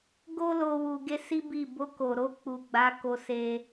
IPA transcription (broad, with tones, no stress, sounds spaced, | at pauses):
ɡ o˦ l o˧ w u˧ ɡ e˦ s i˦ b i˦˨ b o˧ k o˨ ɾ o˧ k͡p u˨ ɡ͡b a˨˦ k o˧ s e˧